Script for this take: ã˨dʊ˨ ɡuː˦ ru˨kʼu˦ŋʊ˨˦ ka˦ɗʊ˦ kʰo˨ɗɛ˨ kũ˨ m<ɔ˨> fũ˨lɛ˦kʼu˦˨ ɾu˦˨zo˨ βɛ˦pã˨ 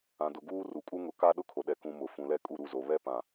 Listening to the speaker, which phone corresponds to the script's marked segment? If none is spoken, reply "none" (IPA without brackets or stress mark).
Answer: ʊ˨